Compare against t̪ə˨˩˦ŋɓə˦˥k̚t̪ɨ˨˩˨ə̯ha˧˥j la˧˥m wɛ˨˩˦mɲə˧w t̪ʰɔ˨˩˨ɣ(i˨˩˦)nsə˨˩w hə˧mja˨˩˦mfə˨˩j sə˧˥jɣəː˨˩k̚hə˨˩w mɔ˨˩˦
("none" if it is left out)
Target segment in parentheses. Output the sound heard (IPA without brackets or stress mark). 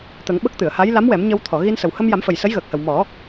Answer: i˧